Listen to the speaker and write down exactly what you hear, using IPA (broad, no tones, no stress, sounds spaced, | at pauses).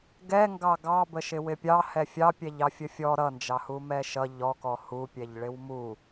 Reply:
ɡ ɛ ŋ ɡ ɑ ɡ ɑ b ə ʃ ɪ w ɪ pʲ ɑ h ɛ fʲ ɑ pʲ ɛ ʎ ɑ fʲ ə fʲ ɔ ɾ ʌ n d͡ʒ ɑ h u m ɛ ʃ ʌ ʎ ɔ k ɔ h u pʲ ɛ ʎ ɭ ɪ w m u